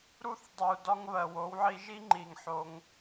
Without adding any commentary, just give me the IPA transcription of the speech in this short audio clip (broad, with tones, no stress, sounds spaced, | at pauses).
ɾ u˦ θ dˤ u˨ d ɒ˦ ŋ β ɜ˨ w o˨˦ w ʕ i˧ ʒ i˦ ŋ͡ǃ i˨ ŋ ħ o˧ ŋ